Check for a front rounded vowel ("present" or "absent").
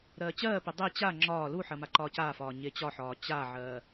absent